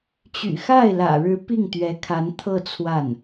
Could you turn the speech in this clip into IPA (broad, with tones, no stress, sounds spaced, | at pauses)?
t͡ɕ y̰˨˩ x a˥˩ ɪ̯ l ä̰˨˩ ɻ ɻ̩˧˥ p i˥˩ ŋ t̪ ɥ ɛ˧˥ kʰ a˧˥ n t̪ʰ ɤ˥˧ t͡sʰ w a˥˩ n